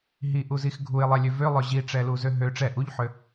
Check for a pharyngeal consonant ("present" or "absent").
present